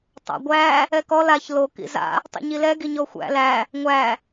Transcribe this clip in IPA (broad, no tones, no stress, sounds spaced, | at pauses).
tˤ a̰ ɡʷ æ | ɛ k ɔ l a ç l o k ḭ z a̰ | tˤ ḭ ɲ i l ɛ ɡ i ɲ ɔ xʷ æ̰ l æ | ŋʷ æ